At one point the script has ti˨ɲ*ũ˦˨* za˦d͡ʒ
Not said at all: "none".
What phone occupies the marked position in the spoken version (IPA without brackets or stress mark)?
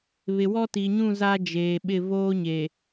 ũ˦˨